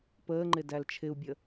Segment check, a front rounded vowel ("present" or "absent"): absent